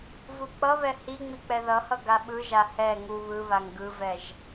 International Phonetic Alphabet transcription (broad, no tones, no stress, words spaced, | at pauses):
vuk͡pʌβɛ hiŋ͡mi k͡pɛðʌhʌ ɡaɓɯʒa hɛ ŋu βɯβaŋ ɡɯvɛʒ